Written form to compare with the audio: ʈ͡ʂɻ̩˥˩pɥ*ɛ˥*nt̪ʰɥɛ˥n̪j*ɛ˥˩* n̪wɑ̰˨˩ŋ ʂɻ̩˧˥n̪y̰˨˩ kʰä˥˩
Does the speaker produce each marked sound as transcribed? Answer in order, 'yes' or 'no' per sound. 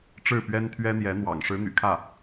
yes, no

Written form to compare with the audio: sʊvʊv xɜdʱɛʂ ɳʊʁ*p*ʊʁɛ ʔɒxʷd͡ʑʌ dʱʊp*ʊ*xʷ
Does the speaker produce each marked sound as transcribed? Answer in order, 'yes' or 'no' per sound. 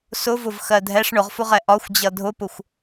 no, yes

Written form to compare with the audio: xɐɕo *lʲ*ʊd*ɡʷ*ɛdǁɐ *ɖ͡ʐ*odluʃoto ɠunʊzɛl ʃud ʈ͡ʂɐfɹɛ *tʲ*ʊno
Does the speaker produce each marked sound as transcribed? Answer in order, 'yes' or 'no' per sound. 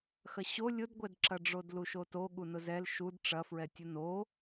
yes, yes, yes, yes

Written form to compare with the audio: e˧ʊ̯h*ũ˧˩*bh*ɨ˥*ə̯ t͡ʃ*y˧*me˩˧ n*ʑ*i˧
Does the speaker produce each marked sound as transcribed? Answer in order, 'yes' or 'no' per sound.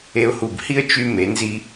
no, no, yes, no

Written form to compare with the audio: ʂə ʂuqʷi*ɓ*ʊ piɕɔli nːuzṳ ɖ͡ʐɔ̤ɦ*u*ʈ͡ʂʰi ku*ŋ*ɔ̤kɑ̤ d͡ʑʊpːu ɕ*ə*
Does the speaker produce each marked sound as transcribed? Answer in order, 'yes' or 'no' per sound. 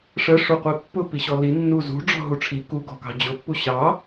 no, yes, no, no

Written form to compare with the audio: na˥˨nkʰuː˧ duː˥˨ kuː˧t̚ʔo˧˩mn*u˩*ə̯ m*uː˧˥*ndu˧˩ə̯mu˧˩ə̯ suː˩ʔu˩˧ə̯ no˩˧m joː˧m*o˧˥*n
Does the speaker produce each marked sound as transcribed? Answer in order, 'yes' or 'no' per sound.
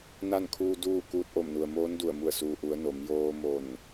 yes, no, no

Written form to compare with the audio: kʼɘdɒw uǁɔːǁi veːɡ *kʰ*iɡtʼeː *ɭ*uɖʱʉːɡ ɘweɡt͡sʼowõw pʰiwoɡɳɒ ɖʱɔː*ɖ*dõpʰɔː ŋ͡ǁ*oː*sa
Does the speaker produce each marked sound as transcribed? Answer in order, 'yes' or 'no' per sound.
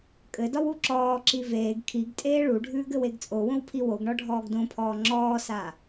yes, yes, no, no

